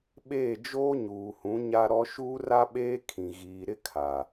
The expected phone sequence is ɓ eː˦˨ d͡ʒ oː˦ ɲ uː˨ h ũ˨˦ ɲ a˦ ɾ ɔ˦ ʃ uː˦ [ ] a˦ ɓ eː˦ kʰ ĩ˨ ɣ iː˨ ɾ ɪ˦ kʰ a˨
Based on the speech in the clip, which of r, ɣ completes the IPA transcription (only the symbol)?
r